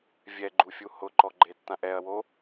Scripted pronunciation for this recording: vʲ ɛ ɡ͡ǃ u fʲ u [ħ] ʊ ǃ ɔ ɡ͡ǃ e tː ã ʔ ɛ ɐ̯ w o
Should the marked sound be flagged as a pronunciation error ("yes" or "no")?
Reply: yes